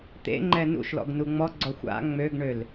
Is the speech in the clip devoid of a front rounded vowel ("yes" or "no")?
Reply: no